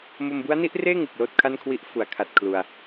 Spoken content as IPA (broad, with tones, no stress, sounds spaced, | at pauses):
m o˧ m b u˦˥ a̯ n i˦˥ ʔ r eː˥˩ ŋ ɯ˨˩ k̚ l oː˥˩ t̚ kʰ a˥˩ n kʰ w i˦˥ ʔ f u˩˦ a̯ kʰ a˨˩ t̚ kʰ l u˧ a̯